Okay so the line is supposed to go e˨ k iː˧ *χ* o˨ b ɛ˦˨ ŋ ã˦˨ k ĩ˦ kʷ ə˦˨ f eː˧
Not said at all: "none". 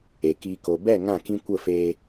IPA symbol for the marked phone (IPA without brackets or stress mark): k